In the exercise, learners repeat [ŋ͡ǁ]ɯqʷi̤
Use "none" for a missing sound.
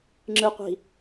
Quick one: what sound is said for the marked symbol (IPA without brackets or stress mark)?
ŋ͡ǁ